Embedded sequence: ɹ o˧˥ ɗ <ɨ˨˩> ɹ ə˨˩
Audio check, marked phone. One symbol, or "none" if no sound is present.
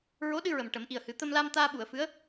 ɨ˧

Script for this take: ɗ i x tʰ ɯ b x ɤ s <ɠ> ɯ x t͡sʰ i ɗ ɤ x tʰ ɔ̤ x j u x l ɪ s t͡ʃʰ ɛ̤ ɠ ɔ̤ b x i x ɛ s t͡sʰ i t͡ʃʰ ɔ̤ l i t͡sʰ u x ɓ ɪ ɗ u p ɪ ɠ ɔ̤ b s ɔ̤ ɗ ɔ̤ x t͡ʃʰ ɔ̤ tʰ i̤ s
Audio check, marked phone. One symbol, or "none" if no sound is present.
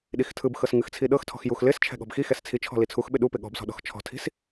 ŋ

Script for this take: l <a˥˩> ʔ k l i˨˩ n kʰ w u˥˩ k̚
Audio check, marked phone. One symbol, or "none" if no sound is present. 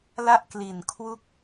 a˥˩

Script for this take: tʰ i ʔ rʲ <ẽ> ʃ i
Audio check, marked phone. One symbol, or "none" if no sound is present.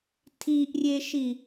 e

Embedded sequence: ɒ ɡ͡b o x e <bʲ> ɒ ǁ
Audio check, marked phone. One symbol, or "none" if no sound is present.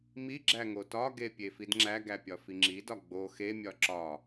mʲ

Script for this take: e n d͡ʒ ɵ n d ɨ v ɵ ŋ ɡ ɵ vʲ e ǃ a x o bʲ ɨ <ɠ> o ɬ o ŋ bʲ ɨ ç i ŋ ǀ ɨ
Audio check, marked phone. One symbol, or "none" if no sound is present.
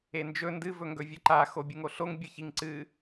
ŋ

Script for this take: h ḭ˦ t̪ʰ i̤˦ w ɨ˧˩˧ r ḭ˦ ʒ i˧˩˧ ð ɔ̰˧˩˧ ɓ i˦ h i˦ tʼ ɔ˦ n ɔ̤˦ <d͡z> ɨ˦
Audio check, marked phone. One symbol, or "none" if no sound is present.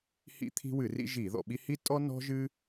ʒ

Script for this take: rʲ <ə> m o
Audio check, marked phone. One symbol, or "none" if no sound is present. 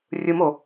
ɯ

